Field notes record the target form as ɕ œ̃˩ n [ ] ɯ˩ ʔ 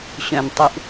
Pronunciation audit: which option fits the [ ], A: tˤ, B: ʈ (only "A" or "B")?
A